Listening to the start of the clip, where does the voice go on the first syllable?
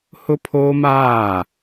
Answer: high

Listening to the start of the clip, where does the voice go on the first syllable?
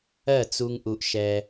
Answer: falling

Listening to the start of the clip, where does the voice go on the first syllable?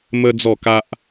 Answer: high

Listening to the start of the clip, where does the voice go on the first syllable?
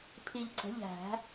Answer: low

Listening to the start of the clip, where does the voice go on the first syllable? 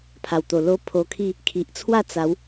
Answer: low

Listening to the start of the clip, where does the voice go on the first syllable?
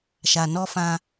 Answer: low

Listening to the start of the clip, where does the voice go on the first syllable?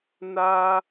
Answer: high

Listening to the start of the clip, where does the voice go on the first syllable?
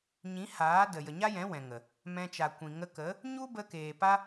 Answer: rising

